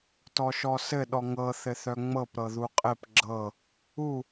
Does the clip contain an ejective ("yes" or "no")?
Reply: yes